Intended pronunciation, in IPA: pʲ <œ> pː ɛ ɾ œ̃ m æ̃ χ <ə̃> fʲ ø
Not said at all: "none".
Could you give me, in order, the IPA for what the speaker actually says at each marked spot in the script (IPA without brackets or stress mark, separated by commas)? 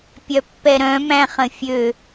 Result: œ, ə̃